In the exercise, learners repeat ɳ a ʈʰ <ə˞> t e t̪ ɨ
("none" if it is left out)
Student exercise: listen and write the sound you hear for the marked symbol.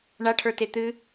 ə˞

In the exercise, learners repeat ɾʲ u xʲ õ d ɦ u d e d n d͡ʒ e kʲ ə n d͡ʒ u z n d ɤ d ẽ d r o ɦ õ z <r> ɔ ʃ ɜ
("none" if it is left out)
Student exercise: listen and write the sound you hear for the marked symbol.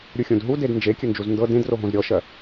ɾʲ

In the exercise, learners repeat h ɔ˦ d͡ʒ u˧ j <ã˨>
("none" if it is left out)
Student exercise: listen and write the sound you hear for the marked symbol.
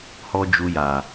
a˨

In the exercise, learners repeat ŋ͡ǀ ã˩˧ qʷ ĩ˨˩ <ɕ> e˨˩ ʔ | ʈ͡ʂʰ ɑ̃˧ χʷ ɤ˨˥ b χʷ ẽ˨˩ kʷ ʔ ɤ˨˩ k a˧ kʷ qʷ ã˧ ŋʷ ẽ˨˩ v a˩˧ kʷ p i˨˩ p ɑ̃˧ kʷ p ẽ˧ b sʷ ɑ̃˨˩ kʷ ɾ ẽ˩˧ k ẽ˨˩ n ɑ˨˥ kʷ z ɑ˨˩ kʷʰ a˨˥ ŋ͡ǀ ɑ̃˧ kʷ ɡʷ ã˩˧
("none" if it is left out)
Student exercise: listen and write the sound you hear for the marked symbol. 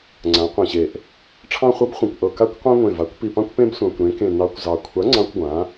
ɕ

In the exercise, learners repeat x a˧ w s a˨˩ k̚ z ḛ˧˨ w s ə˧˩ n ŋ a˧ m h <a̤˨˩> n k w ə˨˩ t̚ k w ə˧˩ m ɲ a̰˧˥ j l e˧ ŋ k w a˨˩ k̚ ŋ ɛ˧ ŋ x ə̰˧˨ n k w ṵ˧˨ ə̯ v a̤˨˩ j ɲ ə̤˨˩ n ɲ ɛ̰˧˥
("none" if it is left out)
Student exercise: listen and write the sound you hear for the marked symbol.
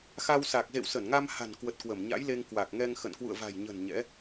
a̤˨˩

